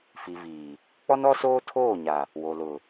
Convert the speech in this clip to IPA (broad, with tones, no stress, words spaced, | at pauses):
fi˨viː˨ | k͡pɔ˦nɔ˦soː˦ tʰoː˦˨ɲa˨ | wo˨ lʊ˨